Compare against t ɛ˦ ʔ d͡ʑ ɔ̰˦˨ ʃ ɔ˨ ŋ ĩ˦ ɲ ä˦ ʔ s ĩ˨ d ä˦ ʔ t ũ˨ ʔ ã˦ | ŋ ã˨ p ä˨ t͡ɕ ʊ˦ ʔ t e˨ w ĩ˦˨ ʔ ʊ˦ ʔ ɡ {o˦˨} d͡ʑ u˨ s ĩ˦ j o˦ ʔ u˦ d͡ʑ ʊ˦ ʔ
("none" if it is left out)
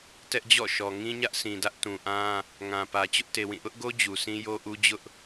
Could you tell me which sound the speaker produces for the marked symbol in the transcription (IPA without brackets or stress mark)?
o˦